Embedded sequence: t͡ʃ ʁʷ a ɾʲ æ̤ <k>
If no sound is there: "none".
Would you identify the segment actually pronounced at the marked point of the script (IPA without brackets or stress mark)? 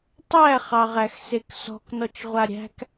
k